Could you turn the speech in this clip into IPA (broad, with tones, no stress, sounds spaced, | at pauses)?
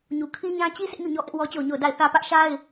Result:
ɲ u˨ kʰ i˦ ɲ ã˦ t͡ɕ i˦ sʰ ɪ˦ ʔ ɲ u˦˨ ɲ ɔ˦ ʔ ɪ˦ ʔ w ɔ˦ t͡ɕ o˦˨ ʊ̯ ɲ o˦˨ ʊ̯ d a˦˨ ɪ̯ θ ä˦ p ä˦ ʔ ʃ a˦ ɪ̯